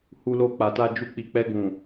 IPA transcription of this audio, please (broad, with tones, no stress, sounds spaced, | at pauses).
h u˧ l o˧ k͡p a˨ t a˧ d͡ʒ u˧ k͡p i˨ k͡p ɛ˧ ɡ ũ˨